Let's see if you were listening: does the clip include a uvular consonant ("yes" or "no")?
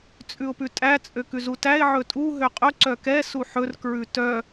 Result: yes